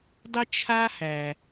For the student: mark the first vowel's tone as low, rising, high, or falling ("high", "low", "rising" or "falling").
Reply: high